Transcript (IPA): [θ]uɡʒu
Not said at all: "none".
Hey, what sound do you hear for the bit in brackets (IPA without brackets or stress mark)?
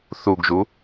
θ